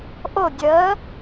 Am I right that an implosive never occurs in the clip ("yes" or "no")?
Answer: yes